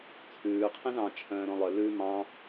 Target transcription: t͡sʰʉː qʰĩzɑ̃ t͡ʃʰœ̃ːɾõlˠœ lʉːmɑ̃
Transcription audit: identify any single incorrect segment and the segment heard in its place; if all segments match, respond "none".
none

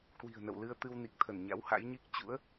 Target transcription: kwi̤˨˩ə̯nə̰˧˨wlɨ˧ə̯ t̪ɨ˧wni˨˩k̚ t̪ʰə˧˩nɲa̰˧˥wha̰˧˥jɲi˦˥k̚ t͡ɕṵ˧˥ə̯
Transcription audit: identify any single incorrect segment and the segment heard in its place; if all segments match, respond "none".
none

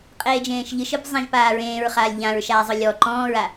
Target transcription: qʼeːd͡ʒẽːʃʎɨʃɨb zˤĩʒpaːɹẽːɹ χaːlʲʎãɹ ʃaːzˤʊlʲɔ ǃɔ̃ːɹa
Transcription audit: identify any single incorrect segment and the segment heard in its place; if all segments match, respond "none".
none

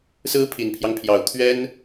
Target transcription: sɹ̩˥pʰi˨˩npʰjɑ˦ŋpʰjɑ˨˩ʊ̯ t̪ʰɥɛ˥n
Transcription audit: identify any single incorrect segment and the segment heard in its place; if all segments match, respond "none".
none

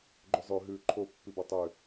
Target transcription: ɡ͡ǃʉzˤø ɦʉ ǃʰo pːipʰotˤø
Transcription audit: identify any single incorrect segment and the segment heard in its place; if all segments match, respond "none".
pʰ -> b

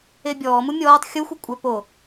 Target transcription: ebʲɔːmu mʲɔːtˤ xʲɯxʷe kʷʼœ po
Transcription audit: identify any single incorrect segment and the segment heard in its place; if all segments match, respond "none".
ɯ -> u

